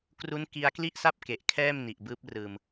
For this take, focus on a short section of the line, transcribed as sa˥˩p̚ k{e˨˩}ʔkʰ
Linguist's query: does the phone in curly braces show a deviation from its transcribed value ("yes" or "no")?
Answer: no